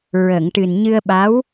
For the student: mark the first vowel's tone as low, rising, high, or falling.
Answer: low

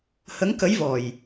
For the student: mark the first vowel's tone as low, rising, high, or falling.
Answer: rising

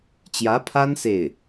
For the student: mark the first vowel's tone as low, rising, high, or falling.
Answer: rising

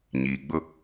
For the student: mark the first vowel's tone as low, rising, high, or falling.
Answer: low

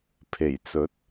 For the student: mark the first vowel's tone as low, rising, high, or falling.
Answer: low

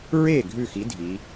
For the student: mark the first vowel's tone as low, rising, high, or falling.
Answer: falling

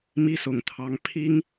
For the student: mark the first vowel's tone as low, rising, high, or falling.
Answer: high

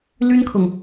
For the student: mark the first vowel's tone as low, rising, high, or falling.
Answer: high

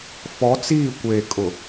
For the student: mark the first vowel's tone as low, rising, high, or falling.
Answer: rising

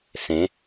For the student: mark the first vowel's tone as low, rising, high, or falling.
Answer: rising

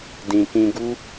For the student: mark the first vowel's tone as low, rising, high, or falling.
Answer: low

